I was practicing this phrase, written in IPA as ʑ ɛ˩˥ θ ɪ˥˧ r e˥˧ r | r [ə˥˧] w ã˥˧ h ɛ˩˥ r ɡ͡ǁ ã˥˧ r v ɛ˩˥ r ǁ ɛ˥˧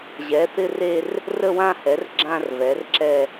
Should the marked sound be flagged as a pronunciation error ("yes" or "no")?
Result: no